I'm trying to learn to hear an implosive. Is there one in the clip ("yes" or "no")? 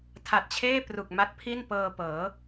no